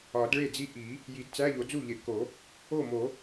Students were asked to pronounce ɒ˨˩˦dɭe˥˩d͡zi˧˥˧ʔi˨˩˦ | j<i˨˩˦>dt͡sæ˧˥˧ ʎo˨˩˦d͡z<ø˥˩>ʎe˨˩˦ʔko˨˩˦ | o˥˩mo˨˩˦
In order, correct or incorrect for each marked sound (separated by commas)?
correct, incorrect